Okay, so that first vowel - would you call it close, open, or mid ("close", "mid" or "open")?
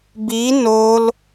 close